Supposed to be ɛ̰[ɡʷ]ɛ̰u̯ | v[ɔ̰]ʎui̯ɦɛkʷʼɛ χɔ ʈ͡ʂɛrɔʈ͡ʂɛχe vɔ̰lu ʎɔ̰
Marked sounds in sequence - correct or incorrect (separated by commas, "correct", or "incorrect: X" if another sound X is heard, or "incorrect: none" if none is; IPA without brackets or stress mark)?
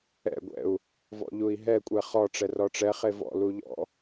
correct, correct